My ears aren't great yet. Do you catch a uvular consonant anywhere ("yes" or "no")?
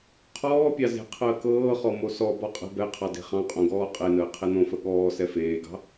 yes